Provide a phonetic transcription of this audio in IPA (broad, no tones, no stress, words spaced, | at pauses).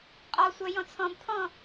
qʼɔsʷœjɔ̃ t͡sʰɔ̃bpʰɔ̃